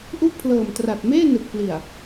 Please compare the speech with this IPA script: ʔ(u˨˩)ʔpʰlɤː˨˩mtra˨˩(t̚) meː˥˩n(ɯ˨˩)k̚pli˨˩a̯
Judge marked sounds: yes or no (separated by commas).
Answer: no, yes, yes